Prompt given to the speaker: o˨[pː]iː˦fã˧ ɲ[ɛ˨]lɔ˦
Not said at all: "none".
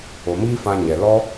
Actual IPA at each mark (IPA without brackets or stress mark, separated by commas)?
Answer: m, ɛ˨